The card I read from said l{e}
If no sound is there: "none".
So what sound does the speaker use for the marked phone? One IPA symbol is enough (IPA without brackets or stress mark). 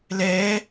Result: ɛ